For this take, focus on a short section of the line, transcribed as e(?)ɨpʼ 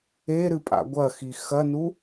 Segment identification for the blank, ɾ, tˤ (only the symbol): ɾ